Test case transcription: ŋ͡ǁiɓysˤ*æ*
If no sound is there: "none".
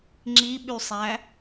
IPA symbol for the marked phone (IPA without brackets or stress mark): æ